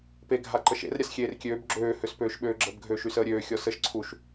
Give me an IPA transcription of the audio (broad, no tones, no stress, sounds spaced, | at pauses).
p e ɡʱ a ǃ ə ʃ ḛ r ɾʲ a s xʲ eː r kʲ øː b ɡ͡ǁ øː h ø s p øː ʃ ɓ øː ɡ͡ǁ ə b ɡʱ øː ʃ y s əː ɾʲ øː xʲ ɔ s ə ʃ ǀʰ u ʃ